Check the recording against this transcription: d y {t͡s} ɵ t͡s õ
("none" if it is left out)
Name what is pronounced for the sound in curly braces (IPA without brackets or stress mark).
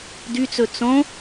t͡s